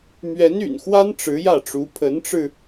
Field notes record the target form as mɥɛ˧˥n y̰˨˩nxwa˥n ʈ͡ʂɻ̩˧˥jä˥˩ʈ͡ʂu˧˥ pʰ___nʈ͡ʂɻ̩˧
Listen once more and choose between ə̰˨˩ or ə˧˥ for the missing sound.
ə˧˥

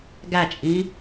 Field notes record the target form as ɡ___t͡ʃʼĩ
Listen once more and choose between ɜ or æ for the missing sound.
æ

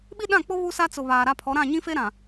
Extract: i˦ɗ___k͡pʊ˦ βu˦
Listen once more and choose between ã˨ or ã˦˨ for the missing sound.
ã˦˨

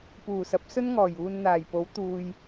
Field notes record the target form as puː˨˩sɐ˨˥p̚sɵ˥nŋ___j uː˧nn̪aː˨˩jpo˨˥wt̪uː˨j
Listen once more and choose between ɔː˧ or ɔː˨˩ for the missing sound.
ɔː˨˩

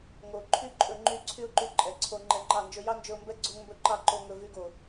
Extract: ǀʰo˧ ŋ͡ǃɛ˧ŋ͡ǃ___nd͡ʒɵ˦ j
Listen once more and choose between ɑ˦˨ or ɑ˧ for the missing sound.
ɑ˦˨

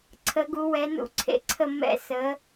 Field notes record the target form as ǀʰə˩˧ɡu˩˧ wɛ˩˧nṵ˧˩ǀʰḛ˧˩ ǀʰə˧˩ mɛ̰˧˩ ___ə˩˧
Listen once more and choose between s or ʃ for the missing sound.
s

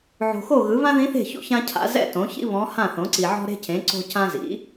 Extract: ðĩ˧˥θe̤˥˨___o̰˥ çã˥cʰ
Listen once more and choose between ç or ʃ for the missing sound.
ç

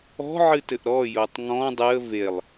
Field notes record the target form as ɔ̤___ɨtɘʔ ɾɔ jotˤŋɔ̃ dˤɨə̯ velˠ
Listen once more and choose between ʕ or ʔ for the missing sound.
ʕ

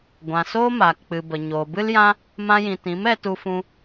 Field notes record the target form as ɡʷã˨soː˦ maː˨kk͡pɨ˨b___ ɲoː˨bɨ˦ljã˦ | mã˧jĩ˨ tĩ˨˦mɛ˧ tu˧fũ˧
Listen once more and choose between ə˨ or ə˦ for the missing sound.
ə˨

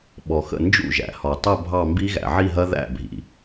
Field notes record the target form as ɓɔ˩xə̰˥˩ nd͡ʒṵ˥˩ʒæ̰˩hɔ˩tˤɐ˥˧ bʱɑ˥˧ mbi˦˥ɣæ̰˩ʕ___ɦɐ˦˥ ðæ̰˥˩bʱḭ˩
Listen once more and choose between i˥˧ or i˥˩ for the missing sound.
i˥˧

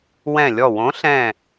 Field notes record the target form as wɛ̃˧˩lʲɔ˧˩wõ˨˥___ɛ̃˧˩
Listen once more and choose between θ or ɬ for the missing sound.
ɬ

